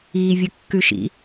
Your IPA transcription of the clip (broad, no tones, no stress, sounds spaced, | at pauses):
iː vʲ ʊ kː ʉ ʃ ḭ